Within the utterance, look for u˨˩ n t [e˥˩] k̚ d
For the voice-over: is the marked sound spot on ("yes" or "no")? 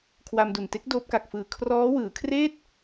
no